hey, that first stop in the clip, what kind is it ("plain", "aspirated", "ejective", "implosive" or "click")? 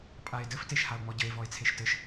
ejective